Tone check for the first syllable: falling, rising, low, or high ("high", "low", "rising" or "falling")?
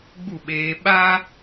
falling